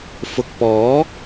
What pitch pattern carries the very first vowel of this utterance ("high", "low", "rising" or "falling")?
low